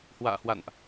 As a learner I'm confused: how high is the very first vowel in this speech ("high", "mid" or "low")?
low